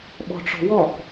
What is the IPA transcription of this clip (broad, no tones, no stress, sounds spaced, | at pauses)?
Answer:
ɓ ɔ̤ ʈ͡ʂ ɔ̤ w ɔ k